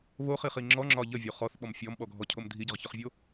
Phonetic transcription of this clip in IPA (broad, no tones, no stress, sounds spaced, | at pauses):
β o χ i χ i ŋ͡ǁ ɔ ŋ͡ǁ ɒ ʎ ə vʲ o χ ɔ θ ɓ ɔ m fʲ ɔ m ɓ ɔ ɡʱ ɔ cʰ o m dʱ i ɟ ə ʁ ç ɒ χ vʲ o